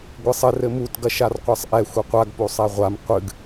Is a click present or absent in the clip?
absent